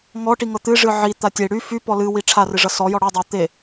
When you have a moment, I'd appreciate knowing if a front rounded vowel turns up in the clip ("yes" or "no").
yes